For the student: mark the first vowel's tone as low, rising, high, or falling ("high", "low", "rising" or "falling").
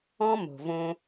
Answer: high